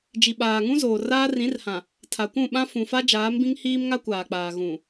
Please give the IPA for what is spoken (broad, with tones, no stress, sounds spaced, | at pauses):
d͡ʒ i˨ ɓ aː˨ ŋ ũ˦ z oː˨ r aː˦ r ĩ˨˦ r h ã˨ | tʰ a˨ kʷ ũ˦˨ ɓ ã˦ f ũ˨ f a˦ d͡ʒ aː˨˦ m b ĩ˦ ŋ h iː˦ m ŋ a˦ kʷ aː˨ k͡p aː˨ ɣ ũ˨